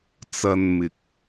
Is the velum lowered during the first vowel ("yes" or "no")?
no